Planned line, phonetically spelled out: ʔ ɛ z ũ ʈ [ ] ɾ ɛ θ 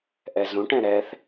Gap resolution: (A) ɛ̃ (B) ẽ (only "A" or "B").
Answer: A